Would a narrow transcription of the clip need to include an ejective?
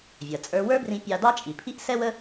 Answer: yes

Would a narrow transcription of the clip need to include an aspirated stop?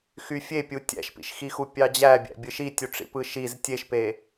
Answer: no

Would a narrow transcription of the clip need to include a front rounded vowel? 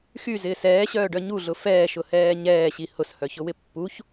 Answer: yes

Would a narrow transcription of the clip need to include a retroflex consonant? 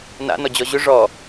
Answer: yes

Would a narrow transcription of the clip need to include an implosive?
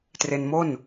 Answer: no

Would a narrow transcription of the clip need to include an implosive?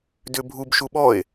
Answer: yes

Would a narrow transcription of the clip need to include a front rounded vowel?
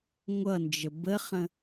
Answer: no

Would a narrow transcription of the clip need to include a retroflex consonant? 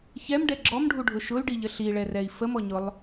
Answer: yes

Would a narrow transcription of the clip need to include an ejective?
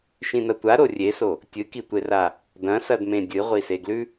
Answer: no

